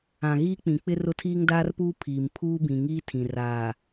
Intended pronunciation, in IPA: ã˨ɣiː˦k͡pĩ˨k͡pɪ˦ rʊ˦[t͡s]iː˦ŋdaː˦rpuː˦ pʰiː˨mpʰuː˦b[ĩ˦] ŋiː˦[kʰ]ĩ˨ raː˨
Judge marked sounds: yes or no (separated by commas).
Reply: no, no, no